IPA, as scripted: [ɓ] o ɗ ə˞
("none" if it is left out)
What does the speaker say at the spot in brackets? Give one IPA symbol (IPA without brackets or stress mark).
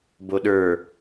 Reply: b